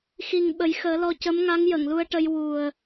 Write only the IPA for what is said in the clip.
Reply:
xi˨˩ŋ ɓə˨˩˦jxəː˨˩˦lɔ˧ cə˧˥mŋa˧˥ŋ jə˨˩˨ŋlu˧ə̯ʈə˧j wu˨˩ə̯

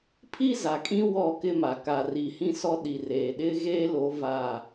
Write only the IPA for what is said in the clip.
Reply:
pʰi˦za˨kʼĩ˦ wɔ˦˨kɪ˦ma˨ ka˨ri˨hĩ˦ sɔ˦ɗi˨reː˨ ɗɪ˦ɣeː˦lo˨˦ va˦˨

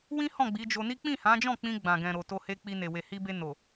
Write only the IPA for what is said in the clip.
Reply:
wĩ˦ hɔ̃˦˨ɡ͡bi˨˦d͡ʒo˧ni˦ k͡pĩ˦˨hã˨˦d͡ʒɔ̃˦˨k͡pĩ˧ ɡ͡bã˨ɡɛ̃˨ ɾo˨ to˧he˧k͡pi˧ne˨ we˨hi˧be˧ no˨

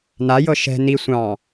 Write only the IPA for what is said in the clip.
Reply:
najɤ ʃɛ̤ ni sʷɑ̃

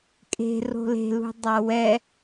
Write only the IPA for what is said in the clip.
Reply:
kʼe̤ ro̤le̤lṳ dˤawɛ

